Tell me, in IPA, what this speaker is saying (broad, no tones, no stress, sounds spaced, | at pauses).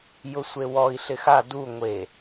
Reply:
j ʊ sʷ e w ɔ i̯ ɬ ɪ x a d u ŋʷ e